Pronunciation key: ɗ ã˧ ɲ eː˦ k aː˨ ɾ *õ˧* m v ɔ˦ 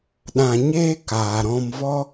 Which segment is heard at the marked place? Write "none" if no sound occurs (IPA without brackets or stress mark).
ɔ̃˧